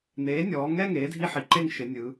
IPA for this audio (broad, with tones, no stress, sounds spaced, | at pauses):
n̪ eː˩˧ nʲ ɔː˩˧ ŋ ɛ˥˧ ŋ eː˩˥ dʱ i˥˧ ħ i˩˥ ǃ e˥˧ ŋ ʃ ɪ˩˧ nʲ ɯ˩˧